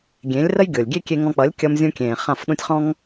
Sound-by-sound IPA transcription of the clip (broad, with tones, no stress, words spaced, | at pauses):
ɡʲẽ˨˦lʲ rə˦jɡʲo˨lʲɡʲe˦ kʲe˧ŋɔ̃˧k͡pʌ˨˦lʲ kʲʌ˧mzʲũ˧kʲẽː˨ χã˦˨f ɗũ˧tʲχɔ̃˦ŋ